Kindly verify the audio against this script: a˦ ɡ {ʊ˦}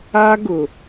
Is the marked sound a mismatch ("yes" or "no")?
yes